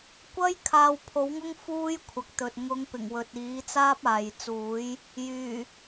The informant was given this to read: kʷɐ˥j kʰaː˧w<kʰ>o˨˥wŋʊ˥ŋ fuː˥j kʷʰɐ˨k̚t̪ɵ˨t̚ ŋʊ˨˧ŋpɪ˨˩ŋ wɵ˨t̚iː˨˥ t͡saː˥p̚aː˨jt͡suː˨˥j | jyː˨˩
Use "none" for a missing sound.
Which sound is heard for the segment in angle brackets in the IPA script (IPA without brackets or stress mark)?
pʰ